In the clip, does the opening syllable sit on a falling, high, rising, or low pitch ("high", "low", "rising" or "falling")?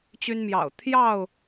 high